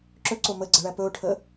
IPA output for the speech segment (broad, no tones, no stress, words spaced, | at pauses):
ǁɵǀo məɡ͡ǀəɭæ pɵʊ̯ʈʰə